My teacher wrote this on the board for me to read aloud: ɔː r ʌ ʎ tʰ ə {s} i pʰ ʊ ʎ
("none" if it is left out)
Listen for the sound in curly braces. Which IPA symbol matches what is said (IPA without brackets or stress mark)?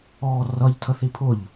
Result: θ